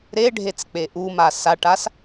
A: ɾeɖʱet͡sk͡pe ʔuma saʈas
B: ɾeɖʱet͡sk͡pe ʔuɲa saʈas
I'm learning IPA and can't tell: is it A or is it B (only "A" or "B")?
A